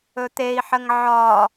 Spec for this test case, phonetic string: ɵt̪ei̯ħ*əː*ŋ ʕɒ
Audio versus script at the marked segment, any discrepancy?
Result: yes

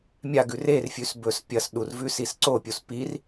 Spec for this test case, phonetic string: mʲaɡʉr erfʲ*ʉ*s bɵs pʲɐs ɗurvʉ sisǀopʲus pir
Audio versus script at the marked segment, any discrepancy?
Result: no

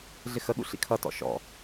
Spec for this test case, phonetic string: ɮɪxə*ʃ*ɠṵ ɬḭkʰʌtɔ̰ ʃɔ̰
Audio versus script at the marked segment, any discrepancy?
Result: yes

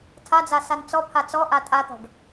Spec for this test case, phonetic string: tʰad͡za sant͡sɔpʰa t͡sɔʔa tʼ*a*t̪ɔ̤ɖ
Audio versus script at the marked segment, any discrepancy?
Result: no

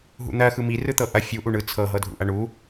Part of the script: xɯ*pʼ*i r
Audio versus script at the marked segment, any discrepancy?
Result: yes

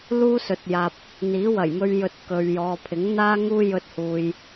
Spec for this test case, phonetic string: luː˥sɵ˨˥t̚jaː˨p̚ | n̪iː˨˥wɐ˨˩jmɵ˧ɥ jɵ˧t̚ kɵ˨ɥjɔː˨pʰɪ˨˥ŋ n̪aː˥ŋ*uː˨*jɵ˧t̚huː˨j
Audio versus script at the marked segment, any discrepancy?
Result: yes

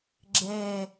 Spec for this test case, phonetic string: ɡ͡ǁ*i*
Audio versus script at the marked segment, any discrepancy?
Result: yes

